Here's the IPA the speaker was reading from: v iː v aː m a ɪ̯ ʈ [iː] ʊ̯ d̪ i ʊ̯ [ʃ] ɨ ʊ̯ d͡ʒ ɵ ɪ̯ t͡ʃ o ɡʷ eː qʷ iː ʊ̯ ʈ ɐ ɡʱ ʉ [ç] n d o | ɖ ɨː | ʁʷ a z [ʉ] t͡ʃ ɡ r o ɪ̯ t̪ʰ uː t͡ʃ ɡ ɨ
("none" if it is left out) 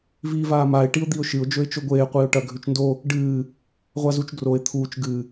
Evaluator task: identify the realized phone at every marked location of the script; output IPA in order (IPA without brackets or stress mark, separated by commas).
i, ʃ, t͡ʃ, u